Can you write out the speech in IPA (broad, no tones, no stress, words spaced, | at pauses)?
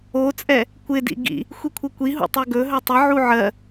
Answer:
ot͡sʼɛ | kʷɪdḭ ɡḭ | xʷikʷʰɘkʷiɦṵ tˤɵɡɵɦɵ tˤəʕu ʕɜ